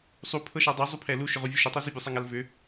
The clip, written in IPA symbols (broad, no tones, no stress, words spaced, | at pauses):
sˤupʰɤʃa dˤʏzˤupʰɛ luʃʏʁuvʲu ʃʏtˤɛ zʏbʲusˤaŋal vʏ